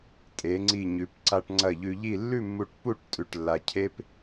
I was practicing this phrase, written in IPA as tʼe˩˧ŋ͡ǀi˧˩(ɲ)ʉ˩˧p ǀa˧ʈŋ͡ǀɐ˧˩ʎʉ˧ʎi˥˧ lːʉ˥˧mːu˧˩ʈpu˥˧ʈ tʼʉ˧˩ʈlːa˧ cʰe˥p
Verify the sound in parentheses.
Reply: correct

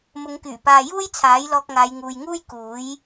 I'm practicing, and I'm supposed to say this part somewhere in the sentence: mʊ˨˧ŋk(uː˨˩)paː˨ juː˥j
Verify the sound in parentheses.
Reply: incorrect: yː˨˩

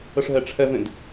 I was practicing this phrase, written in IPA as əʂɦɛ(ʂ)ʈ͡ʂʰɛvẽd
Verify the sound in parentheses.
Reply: incorrect: none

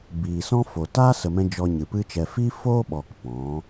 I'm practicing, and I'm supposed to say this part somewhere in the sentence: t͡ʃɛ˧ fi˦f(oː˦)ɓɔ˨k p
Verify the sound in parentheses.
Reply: correct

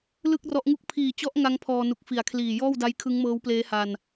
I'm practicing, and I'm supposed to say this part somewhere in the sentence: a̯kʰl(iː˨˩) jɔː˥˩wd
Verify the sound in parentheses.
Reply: correct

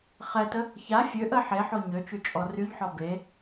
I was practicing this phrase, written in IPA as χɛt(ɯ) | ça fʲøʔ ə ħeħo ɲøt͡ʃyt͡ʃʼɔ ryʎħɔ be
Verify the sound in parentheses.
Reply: incorrect: ə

